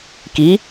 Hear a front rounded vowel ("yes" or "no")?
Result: no